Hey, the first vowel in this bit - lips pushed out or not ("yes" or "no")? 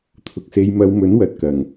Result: yes